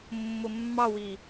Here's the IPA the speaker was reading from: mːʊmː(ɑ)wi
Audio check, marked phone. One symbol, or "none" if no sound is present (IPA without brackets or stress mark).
ɑ